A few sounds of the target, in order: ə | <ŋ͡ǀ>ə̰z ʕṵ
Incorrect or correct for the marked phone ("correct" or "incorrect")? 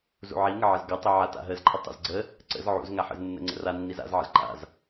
incorrect